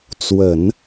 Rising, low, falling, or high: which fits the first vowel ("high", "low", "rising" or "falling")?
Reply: low